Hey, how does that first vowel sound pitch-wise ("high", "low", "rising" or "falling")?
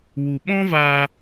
low